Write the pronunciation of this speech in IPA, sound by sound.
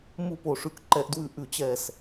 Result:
m u˧˩ p o˧˩ ʂ ʉ˧˩ k ǃ ɛ˧˩ ʔ d w ʉ˧˩ ʔ ʉ˧˩ t͡ɕ ɛ˧˩ s

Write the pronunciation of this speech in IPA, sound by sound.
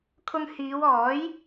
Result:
kʰ ʊ˧ ŋ h iː˨˧ w ɔː˨˥ j

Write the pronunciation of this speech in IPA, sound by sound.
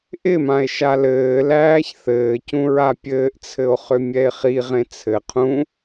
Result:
ʔ ɪ m ã e̯ ʃ a l ɘː l æː ç θ ɘː c ũ ɹ a pʲ ɘː ʔ t͡sʰ ɘ o̯ χ ʏ mʲ ɛ e̯ χ i ʁ ẽ t͡sʰ ɘ qʰ ũ

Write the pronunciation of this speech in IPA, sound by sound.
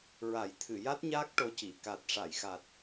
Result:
ɹ a˨˩˦ j t̪ʰ ɨ˨˩˨ j a˦˥ t̚ ɲ aː˦˥ k̚ ʈ o˧ c i˨˩˨ k a˨˩ t̚ ʂ a˨˩˨ j x a˨˩ t̚

